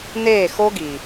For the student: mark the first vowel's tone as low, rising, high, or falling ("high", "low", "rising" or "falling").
falling